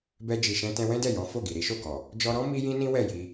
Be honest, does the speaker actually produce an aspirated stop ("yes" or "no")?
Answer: no